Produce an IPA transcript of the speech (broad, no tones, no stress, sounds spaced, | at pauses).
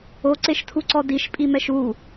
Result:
o ǀ e ʃ tʰ u ǀ ɔ d i ʃ pʼ i m ɛ ʃ u